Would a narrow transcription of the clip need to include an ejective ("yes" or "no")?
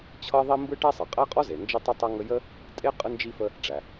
yes